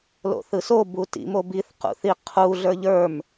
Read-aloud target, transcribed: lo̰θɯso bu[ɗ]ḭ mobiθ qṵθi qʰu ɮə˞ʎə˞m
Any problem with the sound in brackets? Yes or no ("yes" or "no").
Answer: yes